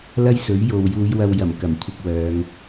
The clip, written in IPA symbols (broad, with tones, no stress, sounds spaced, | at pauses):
l ɐ˥ j s ɵ˨˥ ɥ j o˨ w j uː˨˧ j w ɐ˧ w j ɐ˨˩ m k ɐ˨˩ m kʷʰ ɪ˧ k̚ w œː˨˧ ŋ